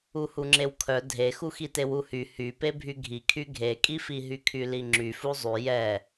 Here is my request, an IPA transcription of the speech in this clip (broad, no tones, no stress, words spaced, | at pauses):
uhuŋ͡ǁewkʰœ dʱexuxite wuhy hype bʱyɡʱikʰy ɡʱekʼifi ɦykʰyliŋ͡ǁy fuzˤy jɛ